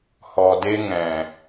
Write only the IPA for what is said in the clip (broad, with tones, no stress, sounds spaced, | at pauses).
h ɔ˨ d e˧ ŋ ɛ̃˨